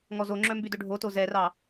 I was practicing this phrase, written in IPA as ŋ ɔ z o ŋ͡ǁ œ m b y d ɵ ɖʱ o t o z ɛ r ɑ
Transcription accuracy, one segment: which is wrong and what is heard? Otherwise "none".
none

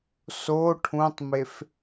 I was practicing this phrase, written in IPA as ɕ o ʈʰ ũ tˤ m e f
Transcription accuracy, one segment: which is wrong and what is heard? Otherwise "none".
ɕ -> s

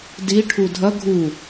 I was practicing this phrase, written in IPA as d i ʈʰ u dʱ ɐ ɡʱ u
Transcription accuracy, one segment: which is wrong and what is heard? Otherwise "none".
none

